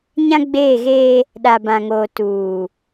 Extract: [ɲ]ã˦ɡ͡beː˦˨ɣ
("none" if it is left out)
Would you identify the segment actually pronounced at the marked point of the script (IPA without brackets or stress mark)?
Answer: ɲ